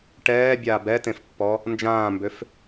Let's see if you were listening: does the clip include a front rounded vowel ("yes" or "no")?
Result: yes